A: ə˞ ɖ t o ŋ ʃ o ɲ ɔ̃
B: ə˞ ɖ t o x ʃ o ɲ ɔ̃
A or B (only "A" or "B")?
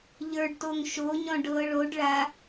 A